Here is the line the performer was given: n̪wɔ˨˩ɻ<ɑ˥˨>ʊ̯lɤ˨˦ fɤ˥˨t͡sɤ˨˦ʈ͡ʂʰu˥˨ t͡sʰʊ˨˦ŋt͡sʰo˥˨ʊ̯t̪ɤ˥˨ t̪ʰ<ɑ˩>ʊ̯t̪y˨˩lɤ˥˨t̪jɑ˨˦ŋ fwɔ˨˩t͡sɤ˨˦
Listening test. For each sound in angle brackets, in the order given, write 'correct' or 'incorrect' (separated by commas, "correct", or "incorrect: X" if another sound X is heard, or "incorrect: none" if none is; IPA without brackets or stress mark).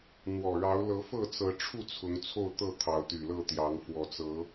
incorrect: ɑ˨˦, incorrect: ɑ˨˦